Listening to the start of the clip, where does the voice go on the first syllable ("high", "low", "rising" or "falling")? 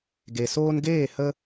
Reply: low